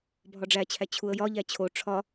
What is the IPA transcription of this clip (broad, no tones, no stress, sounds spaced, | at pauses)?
bʱ ɒ ɖ͡ʐ æ t͡ɕʰ æ t͡ɕʰ u ə̯ j ɒ ʎ æ t͡ɕʰ o ʈ͡ʂʰ ɒ